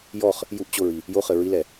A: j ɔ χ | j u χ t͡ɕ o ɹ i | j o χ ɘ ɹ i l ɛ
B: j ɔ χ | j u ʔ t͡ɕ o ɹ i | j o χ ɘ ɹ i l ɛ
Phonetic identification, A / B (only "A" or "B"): B